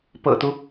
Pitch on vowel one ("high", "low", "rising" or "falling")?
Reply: low